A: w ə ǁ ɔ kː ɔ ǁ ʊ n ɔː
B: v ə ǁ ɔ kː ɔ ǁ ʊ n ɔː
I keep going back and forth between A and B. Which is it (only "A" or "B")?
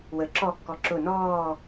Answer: A